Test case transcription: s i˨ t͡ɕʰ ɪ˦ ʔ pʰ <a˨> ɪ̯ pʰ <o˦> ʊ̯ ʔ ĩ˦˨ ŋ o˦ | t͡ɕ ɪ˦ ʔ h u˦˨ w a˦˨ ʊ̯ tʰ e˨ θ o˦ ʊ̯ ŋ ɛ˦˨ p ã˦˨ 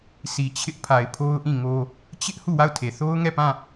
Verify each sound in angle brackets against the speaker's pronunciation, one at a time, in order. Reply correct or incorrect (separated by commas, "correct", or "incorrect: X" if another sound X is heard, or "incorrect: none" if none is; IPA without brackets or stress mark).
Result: correct, correct